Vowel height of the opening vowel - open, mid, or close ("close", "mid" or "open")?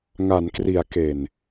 open